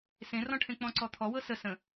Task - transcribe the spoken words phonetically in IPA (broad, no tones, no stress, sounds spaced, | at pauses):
s ẽ r ɔ̃ ʈʰ ẽ k͡p ɔ̃ ǀ ɔ t̪ʰ ɔ w ɤ s ə s ə̃